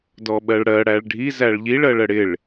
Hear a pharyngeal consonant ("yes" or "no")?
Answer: no